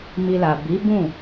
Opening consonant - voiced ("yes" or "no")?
yes